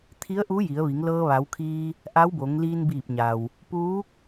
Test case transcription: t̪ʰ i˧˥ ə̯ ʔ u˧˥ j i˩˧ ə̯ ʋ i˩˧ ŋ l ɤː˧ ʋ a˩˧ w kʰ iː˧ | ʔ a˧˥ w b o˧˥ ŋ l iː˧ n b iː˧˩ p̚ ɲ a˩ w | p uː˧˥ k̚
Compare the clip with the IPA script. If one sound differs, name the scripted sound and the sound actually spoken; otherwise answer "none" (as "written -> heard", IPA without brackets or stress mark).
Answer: o˧˥ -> o˩˧